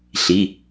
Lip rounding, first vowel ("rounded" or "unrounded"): unrounded